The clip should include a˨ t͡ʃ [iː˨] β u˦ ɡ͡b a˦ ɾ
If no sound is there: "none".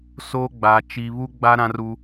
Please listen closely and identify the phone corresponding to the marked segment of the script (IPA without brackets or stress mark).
i˨